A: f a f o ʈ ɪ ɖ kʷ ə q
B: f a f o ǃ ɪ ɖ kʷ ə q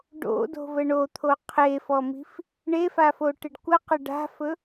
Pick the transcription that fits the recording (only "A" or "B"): A